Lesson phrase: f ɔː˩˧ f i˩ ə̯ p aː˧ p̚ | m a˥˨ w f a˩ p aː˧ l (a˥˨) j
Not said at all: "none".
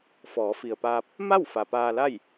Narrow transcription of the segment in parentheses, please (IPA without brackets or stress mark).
a˥˨